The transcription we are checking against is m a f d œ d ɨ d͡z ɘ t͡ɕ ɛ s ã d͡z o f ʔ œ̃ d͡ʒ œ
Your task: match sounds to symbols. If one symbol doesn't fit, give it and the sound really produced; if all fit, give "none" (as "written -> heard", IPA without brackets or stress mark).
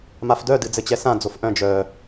none